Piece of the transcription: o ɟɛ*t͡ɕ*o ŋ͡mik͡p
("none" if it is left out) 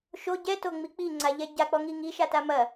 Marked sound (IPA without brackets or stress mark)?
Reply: t